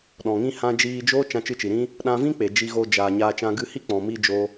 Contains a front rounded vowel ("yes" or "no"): no